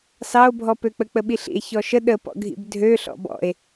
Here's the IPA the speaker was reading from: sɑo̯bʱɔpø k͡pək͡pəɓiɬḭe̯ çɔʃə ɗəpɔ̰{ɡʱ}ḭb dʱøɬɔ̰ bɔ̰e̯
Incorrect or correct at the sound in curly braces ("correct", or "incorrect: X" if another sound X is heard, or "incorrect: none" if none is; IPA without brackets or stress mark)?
correct